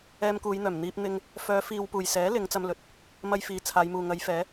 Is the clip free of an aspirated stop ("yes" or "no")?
no